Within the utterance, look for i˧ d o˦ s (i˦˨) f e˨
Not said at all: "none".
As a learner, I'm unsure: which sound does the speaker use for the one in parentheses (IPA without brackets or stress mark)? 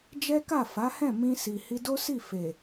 i˦˨